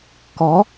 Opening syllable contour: rising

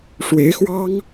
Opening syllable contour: rising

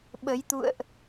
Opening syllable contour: rising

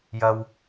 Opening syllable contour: low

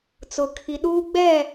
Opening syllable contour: low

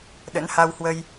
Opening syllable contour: rising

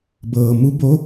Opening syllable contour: low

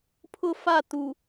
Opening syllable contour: falling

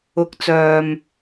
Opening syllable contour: rising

